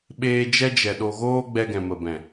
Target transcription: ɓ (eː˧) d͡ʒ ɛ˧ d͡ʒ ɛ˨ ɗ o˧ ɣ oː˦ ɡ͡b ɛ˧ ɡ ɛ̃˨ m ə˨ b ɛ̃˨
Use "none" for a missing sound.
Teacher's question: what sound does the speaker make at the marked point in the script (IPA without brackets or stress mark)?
eː˧